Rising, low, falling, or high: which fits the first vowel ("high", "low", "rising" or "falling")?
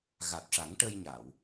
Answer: low